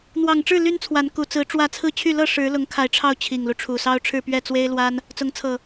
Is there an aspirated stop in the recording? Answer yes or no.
yes